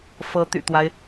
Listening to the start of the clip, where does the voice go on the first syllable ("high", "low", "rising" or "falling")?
rising